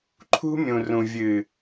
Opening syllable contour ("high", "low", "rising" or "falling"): high